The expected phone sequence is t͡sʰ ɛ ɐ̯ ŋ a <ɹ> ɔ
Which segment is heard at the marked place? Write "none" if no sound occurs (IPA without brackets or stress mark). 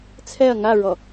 ɹ